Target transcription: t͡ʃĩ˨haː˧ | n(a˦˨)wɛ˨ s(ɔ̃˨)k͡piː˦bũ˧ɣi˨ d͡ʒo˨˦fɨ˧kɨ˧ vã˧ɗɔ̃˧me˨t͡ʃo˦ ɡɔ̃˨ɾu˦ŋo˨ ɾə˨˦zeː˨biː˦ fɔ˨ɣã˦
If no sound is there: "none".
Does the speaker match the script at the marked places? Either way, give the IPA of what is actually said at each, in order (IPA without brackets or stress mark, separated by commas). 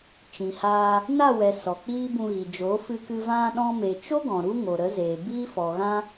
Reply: a˦˨, ɔ˨